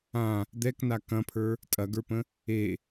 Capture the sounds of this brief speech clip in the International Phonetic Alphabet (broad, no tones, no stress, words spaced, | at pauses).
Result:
ã | d̪ɛkna kɐ̃pʰə˞ | tʼɐɡə˞pə̃ | e